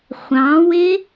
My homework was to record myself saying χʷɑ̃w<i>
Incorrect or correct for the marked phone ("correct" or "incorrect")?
incorrect